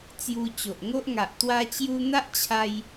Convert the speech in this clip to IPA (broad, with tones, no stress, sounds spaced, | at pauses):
t͡s j u˧ t͡ɕ o˨ ʔ ŋ o˦ ʔ ŋ a˨ ʔ t̪ w a˧ t͡ɕ j u˧ n̪ a˦ ʔ t͡ɕʰ a˧ j